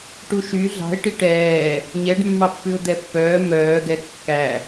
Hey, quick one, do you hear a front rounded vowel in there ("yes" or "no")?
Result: yes